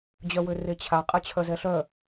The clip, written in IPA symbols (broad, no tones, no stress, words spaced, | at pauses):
d͡ʑœwøret͡ɕʰa qʼɛt͡ɕʰœzɛɬœ